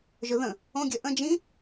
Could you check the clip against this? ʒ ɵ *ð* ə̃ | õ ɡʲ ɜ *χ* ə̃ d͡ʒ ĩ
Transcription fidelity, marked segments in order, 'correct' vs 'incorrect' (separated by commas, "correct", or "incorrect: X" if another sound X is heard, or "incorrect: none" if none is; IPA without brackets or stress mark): correct, incorrect: ʔ